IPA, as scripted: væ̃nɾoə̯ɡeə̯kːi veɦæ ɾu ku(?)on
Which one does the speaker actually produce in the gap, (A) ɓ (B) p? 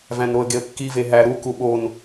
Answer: A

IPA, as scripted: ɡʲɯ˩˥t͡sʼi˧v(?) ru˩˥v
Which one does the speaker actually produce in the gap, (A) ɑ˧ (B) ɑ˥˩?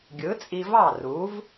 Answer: B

